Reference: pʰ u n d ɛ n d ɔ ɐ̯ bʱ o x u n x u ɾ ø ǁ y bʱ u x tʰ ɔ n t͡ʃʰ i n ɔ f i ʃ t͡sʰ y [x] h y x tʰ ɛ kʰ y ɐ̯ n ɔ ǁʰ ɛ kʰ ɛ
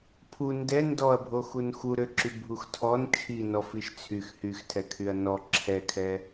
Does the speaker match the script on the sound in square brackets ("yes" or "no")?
yes